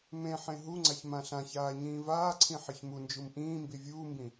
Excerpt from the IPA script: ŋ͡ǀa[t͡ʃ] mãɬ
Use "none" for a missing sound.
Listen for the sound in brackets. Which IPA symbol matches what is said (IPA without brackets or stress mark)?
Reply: ç